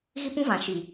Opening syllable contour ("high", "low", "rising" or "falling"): high